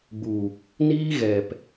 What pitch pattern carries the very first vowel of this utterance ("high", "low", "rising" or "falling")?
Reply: low